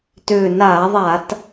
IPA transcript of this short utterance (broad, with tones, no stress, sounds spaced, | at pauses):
t ʏː˨˩ n aː˧˩˧ ðˤ a˧˩˧ t